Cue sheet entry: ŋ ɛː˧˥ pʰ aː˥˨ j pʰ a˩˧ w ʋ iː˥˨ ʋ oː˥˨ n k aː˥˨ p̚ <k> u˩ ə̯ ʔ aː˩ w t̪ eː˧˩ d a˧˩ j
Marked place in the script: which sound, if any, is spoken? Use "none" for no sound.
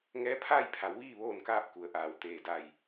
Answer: k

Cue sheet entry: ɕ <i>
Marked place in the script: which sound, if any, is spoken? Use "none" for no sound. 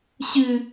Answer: ɨ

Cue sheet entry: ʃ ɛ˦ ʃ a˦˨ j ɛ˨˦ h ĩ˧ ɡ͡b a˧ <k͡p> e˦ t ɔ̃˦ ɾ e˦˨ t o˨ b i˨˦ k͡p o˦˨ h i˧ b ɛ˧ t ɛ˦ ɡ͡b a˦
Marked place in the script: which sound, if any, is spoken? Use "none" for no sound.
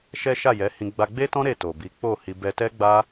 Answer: ɡ͡b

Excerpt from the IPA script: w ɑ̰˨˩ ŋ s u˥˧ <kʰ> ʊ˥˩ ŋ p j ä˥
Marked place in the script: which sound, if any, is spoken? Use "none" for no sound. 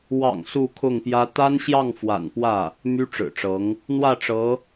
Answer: kʰ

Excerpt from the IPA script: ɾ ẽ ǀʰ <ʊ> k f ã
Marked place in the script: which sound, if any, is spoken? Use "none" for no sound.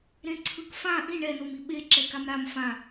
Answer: ɯ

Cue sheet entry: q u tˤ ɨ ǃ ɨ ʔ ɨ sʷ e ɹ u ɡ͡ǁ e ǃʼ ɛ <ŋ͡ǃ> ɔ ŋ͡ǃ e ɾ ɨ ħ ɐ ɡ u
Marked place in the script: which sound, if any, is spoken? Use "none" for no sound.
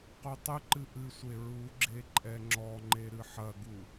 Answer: ŋ͡ǁ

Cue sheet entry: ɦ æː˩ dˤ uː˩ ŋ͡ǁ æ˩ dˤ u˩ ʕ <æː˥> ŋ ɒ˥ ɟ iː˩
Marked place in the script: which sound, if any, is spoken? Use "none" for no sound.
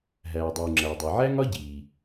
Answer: æ˥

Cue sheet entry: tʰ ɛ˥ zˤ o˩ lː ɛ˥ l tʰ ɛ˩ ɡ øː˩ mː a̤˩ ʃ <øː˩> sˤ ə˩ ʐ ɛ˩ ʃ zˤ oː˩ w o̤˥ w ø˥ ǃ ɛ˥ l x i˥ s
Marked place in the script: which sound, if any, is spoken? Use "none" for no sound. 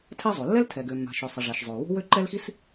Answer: ø˩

